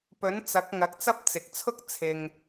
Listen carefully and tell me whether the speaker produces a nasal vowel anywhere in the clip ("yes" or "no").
no